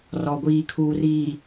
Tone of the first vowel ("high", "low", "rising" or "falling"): low